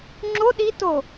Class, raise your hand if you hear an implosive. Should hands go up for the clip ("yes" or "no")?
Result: yes